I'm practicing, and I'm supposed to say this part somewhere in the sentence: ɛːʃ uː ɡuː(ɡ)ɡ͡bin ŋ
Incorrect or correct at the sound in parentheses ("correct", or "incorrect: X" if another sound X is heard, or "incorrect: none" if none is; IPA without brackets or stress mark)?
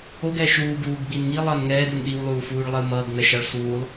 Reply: correct